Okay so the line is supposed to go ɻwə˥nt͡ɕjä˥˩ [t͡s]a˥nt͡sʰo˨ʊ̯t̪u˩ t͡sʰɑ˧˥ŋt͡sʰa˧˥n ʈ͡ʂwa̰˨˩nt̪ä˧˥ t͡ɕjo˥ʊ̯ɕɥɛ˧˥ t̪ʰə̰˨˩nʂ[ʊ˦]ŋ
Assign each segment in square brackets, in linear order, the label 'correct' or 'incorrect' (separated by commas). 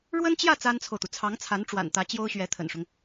correct, correct